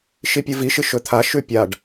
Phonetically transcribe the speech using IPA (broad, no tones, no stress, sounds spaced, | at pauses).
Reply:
ʃ i pʲ ɨ v i ʃ ɨ ʃ ɵ t̪ʰ a ʃ ʉ pʲ a ɖ